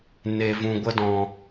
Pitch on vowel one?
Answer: low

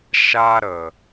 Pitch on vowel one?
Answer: high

